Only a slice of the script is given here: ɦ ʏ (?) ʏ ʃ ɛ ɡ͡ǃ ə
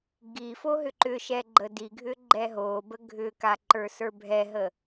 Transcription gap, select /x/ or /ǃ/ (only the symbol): ǃ